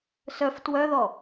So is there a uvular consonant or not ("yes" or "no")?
no